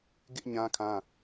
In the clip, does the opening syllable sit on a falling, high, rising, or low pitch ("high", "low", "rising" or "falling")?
high